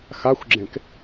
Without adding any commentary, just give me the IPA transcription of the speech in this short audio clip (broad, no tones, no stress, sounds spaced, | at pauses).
x a xʷ ɡ͡ǁ ẽ k